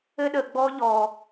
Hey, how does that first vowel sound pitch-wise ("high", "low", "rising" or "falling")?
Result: high